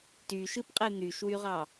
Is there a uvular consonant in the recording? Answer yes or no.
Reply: yes